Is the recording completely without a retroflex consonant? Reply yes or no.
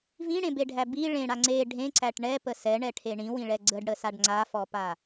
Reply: no